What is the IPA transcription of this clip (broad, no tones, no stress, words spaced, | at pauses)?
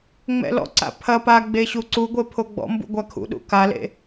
ŋ͡mɛ̰lɔ̰ǀa̰ pʰɐ pa ɡ͡beɕuǀuɡʷe pʰoɡ͡bɔ̰mbṵ ɡʷakʰṵɗṵ kalḛ